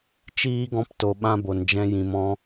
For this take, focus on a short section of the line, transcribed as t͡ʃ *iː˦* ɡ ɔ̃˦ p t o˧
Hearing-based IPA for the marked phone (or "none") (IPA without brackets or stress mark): iː˦